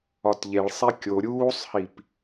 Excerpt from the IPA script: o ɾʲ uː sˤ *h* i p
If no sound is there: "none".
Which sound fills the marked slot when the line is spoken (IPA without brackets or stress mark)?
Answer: h